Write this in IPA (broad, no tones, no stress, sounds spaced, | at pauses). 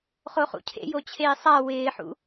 χ o χ ṵ cʰ ḛ j o t͡ɕʰ eː sˤ a w ɪː ħ ṵ